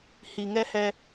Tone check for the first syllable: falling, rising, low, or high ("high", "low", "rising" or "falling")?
low